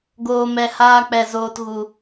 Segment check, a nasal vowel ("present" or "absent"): absent